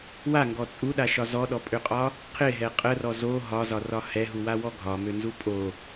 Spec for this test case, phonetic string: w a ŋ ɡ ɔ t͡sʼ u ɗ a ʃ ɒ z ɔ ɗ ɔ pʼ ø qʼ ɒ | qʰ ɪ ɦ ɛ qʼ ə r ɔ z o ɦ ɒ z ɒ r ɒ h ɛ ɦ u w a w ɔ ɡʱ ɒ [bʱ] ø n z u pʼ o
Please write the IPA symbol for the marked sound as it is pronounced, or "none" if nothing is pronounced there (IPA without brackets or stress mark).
m